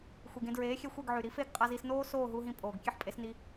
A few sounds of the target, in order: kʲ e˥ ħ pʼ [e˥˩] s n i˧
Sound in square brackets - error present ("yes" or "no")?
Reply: yes